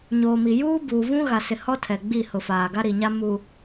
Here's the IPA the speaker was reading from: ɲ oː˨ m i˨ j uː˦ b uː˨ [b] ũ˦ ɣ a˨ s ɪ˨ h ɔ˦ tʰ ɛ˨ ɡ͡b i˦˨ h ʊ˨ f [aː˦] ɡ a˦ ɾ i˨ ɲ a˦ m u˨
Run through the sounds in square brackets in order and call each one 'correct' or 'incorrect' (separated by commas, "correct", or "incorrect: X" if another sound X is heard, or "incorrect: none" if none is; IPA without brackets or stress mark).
incorrect: v, incorrect: aː˨